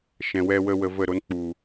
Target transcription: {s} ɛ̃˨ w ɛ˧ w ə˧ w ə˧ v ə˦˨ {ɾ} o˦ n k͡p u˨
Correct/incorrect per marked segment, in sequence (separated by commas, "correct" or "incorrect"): incorrect, correct